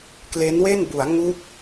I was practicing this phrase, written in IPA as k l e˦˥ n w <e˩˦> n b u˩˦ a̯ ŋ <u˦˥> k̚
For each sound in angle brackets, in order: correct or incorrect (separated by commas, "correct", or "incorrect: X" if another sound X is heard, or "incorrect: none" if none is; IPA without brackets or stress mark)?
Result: incorrect: e˥˩, correct